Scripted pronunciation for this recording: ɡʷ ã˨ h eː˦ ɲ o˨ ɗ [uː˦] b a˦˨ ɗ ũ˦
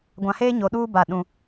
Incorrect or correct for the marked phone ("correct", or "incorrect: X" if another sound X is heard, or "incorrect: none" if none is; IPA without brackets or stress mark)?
correct